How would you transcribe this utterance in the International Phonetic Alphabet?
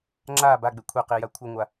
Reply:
ŋ͡ǁ a b a ɡ͡b e kʷʰ e q i j a kʷʰ ɪ ŋʷ a

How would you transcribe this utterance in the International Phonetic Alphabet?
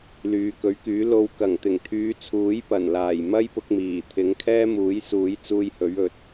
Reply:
l yː˨ k ɵ˨˥ ɥ k yː˨˥ l o˧ w k ɐ˨˩ ŋ t̪ ɪ˨˩ ŋ t̪ʰ yː˨˧ t͡sʰ uː˨˥ j p ɐ˨˩ n l aː˨˩ j m ɐ˥ j p ʊ˧ k̚ m iː˨˩ t̪ʰ ɪ˨˥ ŋ kʰ ɛː˥ m uː˨˥ j s uː˨˥ j t͡s uː˧ j h ɵ˨˥ ɥ ɵ˨˥ t̚

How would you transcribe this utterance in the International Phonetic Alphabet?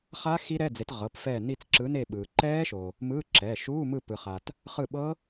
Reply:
χ a˦˥ x i˦˥ ɾ ɛ˧˥˧ d͡z e˨˥ t ʁ ɤ˩˧˩ p f ɛː˦˨ n i˦˨ t͡s ǁ ɯ˨˥ n e˦˨ ɓ ɯː˩ ǃ ɛː˦˥ ʃ o˩ | m ɯː˧˥˧ ǁ ɛː˩˧˩ ʃ uː˧˥˧ m ɯ˦˨ p ɯ˩ χ a˩ t | χ ɯ˦˨ ɓ ɤ˦˥

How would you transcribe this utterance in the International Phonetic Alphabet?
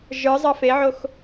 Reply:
ʒ ə˞ zˤ ɑ f e ʕ o x

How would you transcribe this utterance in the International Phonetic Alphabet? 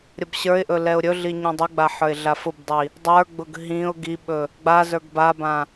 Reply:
ɾʲ ə b ɕ ə˞ ɪ̯ ʔ ɵ l ɛ ʊ̯ ɾʲ ɵ ɮ i ɲ ɛ̃ dˤ ə ɡ͡b a ħ ə˞ ɪ̯ ɮ a f ʊ b dˤ i | dˤ ə˞ ɡ͡b ʊ ɡ ɦ ĩ ʊ̯ ɡ i ɓ ɵ | ɡ͡b a z ə˞ ɡ b a b ã

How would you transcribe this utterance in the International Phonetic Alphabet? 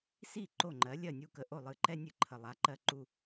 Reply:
s i˥˩ ǃ o˥˩ ŋ͡ǃ ɜ˩˥ lʲ ɜ˥˩ nʲ u˥˩ k ə˧ ʔ o˥˩ lˠ ɨ˧ ǃ ɛ˥ nʲ ɨ˧ ǃʰ ə˩ lˠ a˩˥ ǃ ɜ˧ ǃ u˧

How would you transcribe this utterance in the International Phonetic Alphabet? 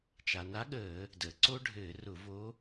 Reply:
t͡ʃ a˩ n a˧˥ ɠ əː˧˩˧ | d əː˩ ǀ o˥ ɖʱ ɘː˧˩˧ r ʊ˧˩˧ v o˧˥

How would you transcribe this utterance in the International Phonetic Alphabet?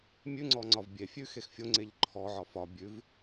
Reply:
mʲ ʉ ŋ͡ǀ ɔ ŋ͡ǀ ɒ v bʲ e fʲ ʉ x e x fʲ o ŋ͡ǀ e ʎ ǃʰ ɔ ʕ ɒ f ɒ bʲ ʉ v

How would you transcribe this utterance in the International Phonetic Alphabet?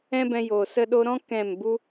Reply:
ɛ̃˦ b ɛ̃˧ j oː˨ s ə˧ ɗ o˧ ɾ ɔ̃˦ k ɛ̃˦˨ m b u˦

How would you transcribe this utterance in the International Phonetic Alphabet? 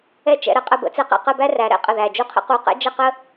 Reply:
ɛ˥˧ t͡ʃ ɛ̰˧ ɾ ə˧ qʼ ə˥˧ b ə̰˩˧ t͡s ɛ˥ q ɛ̰˧˩ q ə˥˧ b æ˥ r æ˩˧ ɾ ɛ̰˥ qʼ ə˧˩ ð æ˧˩ d͡ʒ u˥˧ qʰ ə̰˥ q u˧˩ q ɛ̰˥ d͡ʒ ə˥˧ q ə˥

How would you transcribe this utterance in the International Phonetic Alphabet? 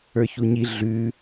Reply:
ə˞ ç u ɲ i ɮ ʉ

